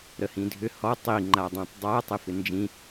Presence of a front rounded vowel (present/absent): present